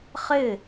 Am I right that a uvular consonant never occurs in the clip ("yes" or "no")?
no